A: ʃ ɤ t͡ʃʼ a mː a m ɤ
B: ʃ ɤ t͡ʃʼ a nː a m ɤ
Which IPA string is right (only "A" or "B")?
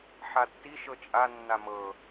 B